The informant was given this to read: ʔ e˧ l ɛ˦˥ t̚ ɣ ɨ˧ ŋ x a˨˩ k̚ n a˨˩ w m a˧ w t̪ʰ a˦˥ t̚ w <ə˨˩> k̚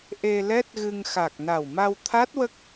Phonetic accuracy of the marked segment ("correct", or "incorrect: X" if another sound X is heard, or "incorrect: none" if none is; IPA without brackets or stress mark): incorrect: ə˦˥